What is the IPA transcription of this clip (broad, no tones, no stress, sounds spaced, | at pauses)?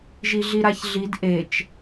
ʒ i ɮ i ɾ a ç ɮ i d ʔ e t͡ʃ